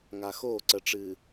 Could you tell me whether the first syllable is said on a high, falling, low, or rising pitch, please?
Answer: low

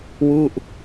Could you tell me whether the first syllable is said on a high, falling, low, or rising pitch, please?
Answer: falling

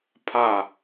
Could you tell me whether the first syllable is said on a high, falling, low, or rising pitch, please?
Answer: falling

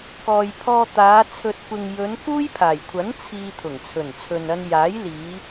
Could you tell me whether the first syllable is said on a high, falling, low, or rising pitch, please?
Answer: low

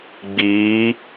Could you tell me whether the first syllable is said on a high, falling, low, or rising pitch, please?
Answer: rising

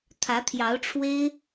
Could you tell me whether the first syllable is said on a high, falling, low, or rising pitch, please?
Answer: rising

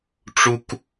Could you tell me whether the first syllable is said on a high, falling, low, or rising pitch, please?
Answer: high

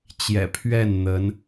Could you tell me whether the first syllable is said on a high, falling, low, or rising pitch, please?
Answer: low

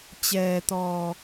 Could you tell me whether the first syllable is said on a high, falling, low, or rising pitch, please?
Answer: low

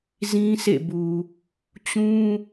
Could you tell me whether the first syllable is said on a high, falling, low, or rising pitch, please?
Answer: high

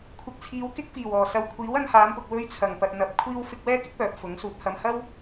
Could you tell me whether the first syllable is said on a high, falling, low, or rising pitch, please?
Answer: low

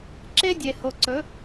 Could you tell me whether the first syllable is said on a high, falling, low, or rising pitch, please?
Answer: high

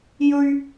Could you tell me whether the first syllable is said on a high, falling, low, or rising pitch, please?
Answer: high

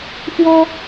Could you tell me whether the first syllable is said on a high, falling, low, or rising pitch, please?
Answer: high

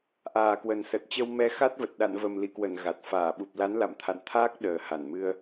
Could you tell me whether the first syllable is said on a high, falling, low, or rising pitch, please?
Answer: low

